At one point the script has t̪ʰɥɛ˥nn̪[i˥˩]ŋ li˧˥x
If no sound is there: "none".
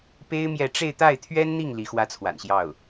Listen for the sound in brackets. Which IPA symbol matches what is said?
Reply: i˥˩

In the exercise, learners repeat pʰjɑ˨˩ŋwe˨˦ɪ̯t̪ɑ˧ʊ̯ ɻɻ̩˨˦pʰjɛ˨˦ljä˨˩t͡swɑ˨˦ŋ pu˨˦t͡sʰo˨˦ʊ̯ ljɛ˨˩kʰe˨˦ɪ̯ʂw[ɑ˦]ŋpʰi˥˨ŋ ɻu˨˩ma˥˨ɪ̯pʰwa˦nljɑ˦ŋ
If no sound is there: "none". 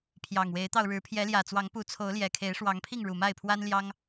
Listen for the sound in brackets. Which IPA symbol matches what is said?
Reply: ɑ˨˦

